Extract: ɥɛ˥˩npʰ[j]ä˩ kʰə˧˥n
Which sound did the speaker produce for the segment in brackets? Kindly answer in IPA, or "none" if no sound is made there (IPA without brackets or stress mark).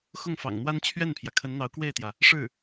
j